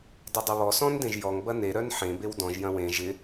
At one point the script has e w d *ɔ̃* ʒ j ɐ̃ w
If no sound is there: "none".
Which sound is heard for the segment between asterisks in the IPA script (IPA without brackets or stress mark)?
ɔ̃